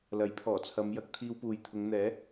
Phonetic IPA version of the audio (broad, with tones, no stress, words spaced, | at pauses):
lɐ˨˥jpʰɔː˨˩t͡sʰɐ˨˧mjɐ˧k̚ t̪ʰiː˧wpuː˨jt̪ʰʊ˨˧ŋn̪ɛː˨˥